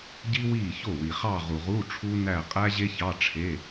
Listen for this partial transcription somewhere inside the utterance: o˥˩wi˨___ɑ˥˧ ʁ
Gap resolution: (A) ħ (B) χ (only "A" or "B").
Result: B